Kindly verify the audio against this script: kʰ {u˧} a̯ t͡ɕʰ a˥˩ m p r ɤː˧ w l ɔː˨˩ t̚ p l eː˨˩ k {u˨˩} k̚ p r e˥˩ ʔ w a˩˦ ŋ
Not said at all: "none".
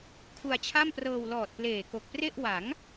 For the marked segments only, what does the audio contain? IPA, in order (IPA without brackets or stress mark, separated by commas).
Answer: u˧, o˨˩